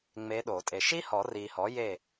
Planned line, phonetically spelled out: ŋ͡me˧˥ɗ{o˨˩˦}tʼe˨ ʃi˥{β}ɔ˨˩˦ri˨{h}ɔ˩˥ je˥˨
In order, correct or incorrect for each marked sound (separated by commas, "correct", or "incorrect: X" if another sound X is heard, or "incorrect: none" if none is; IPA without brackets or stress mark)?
correct, incorrect: h, correct